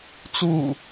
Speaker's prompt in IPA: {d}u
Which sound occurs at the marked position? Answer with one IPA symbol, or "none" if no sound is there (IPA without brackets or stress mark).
t͡s